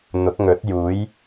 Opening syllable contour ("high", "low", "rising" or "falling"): rising